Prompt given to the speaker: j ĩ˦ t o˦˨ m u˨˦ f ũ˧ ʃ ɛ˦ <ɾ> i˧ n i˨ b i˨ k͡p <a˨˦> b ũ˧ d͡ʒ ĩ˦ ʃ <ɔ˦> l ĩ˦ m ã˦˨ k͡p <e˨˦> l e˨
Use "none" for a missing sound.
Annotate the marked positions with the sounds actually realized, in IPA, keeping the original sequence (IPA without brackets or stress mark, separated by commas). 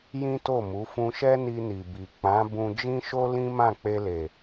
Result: n, ã˨˦, o˦, e˧